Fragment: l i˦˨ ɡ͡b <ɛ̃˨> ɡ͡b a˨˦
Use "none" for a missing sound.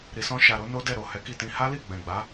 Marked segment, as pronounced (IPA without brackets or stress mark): ɛ̃˨